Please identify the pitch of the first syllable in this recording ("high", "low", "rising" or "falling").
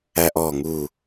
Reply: high